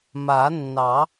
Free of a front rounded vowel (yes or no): yes